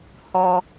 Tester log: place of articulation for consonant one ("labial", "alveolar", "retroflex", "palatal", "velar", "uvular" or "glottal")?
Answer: glottal